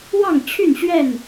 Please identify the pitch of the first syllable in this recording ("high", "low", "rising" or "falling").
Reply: falling